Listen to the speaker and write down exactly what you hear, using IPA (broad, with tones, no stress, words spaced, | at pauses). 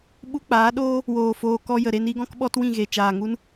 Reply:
ɓu˦k͡paː˨˦ɗoː˦ | woː˨ foː˧kɔ˧jə˨ ɾe˧ni˧ɡɔ̃˦k ɓɔ˦twĩ˦˨ɣe˨ t͡ʃaː˨ŋu˦n